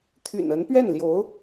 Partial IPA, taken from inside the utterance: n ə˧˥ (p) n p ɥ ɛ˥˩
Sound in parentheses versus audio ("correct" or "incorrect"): incorrect